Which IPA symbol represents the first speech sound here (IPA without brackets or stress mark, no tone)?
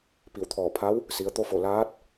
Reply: p